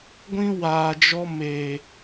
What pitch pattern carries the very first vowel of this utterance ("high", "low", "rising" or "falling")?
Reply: high